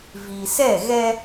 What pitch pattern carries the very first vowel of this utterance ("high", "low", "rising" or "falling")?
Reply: low